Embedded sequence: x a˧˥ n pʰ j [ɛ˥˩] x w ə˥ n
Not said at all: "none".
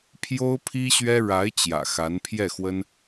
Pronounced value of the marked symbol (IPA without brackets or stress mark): ɛ˥˩